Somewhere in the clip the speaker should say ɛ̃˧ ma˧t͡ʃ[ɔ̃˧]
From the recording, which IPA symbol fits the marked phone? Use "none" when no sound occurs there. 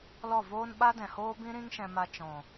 ɔ̃˨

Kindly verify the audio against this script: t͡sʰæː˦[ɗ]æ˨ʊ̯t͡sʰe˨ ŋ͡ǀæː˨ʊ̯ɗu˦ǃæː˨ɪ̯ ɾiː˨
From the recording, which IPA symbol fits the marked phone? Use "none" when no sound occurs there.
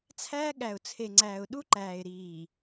ɠ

